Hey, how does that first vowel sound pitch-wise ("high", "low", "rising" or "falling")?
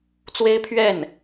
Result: high